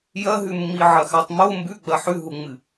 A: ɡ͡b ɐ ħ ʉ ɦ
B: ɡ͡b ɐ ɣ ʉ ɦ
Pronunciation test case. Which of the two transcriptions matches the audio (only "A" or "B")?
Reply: A